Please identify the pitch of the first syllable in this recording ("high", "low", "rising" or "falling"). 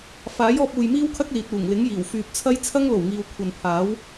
rising